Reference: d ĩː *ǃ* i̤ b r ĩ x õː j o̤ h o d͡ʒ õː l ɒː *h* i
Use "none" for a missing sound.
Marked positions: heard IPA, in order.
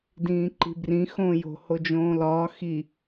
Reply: ǃ, x

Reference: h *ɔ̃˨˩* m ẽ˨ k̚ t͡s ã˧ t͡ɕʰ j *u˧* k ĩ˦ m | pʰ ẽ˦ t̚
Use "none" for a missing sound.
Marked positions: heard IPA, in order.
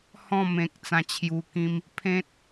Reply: ɔ̃˥˧, u˧

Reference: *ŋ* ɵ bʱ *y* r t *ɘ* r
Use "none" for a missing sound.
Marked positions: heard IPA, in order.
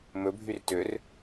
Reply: m, y, ø

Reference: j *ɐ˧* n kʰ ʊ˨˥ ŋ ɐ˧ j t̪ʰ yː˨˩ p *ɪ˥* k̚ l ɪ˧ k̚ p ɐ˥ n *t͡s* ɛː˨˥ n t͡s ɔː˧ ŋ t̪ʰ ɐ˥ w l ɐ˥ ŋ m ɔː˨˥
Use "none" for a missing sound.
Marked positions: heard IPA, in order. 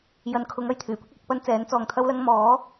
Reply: ɐ˨˧, ɪ˥, t͡s

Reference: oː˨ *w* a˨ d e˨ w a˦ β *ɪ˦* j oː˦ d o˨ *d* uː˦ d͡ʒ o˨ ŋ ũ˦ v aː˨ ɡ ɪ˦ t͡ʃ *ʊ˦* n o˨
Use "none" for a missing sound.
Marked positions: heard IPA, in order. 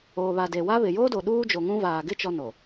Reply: β, ɪ˨, ɗ, ɔ˦

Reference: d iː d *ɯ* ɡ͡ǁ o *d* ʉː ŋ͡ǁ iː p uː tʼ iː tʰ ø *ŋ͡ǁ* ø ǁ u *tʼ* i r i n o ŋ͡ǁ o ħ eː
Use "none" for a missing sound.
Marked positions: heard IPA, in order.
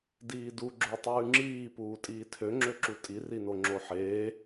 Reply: u, tˤ, ŋ͡ǁ, tʼ

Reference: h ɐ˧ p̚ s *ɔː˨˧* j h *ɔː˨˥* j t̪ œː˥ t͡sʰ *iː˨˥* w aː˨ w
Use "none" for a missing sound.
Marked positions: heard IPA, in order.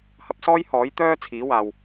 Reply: ɔː˥, ɔː˨˥, iː˨˥

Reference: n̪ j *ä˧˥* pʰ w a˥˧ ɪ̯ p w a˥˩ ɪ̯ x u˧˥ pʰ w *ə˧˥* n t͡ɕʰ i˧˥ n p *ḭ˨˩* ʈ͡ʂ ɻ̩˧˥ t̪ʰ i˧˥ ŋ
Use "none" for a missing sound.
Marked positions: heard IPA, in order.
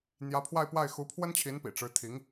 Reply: ä˧˥, ə˥, ḭ˨˩

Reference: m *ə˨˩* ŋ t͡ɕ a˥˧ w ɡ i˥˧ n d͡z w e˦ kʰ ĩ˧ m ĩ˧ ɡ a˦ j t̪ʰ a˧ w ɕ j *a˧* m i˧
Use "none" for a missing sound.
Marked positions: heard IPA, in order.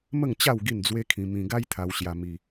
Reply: ə˥˧, a˧

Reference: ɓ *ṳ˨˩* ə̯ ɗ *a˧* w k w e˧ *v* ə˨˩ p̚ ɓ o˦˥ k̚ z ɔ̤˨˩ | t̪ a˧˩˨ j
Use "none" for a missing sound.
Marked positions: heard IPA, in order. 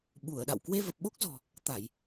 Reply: u˧˩, a̰˧˨, v

